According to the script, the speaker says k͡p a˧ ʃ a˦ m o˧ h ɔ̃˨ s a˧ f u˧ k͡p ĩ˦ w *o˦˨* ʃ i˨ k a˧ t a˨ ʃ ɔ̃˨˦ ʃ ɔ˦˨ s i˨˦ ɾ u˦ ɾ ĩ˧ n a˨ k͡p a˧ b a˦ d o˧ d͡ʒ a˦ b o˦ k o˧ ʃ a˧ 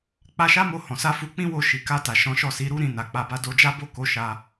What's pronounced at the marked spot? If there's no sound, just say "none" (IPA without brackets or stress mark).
o˦˨